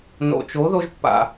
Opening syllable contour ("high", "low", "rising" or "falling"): low